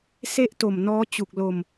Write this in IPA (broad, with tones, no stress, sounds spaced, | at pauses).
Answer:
s e˥˩ ʔ t o˨˩ m n ɔː˦˥ t͡ɕ u˨˩ k̚ l o˧ m